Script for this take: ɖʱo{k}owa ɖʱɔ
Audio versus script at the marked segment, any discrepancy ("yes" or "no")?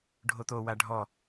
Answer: yes